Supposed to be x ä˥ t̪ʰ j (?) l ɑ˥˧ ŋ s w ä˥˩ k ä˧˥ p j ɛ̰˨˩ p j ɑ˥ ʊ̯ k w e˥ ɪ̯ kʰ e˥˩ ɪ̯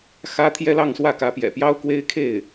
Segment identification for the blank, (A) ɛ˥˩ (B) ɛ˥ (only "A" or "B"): B